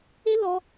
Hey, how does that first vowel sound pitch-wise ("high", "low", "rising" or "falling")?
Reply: high